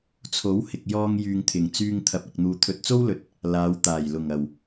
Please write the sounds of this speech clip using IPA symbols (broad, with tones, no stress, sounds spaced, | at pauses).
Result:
t͡sʰ o˨˥ w h ɪ˨ k̚ j ɔː˧ ŋ j yː˨ ŋ t̪ʰ ɪ˨˩ ŋ t͡s yː˧ ŋ t̪ʰ ɐ˨ p̚ ɐ˨ k̚ n̪ uː˨ t̪ʰ ɵ˧ t̚ t͡s o˥ w l ɵ˨ t̚ | l aː˨˧ w t̪ aː˨˩ j l ʊ˨˩ ŋ ɐ˨˩ w